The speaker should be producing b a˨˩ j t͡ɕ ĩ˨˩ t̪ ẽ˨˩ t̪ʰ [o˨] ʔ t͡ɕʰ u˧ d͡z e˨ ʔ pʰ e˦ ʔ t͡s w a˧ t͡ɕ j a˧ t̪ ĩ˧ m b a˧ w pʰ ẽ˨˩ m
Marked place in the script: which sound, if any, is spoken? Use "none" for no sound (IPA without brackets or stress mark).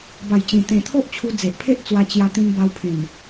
o˦